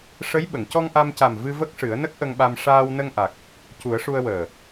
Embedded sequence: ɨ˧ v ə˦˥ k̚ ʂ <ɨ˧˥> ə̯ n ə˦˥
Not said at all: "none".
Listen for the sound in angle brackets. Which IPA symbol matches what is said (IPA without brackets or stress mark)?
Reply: ɨ˨˩˦